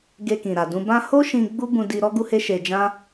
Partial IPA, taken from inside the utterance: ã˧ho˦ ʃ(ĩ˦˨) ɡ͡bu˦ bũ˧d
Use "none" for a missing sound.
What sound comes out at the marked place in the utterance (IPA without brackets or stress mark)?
ĩ˧